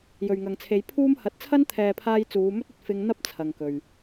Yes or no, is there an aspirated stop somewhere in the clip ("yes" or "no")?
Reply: yes